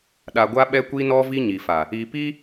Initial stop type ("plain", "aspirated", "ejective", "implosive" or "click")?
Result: implosive